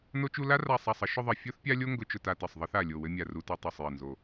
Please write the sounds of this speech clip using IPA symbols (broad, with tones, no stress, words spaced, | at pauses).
no˥t͡ʃu˥ la˥ra˦˨ sˤa˦˨sˤə˥ ʃʊ˥ðˤɘ˦˨ fʲo˥θpʲa˥lʲo˥ ŋɡʊ˥ t͡ʃʊ˥ta˥tɘ˦˨sˤ ðˤɘ˥θa˦˨ lʲo˦˨wɘ˥mʲa˦˨ ru˥tu˥ tˤo˦˨sˤ jɘ˦˨nzo˦˨